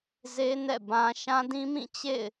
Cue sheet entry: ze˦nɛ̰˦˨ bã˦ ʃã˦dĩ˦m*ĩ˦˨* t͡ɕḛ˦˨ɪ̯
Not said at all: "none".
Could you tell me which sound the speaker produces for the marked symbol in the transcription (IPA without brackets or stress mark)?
ĩ˦˨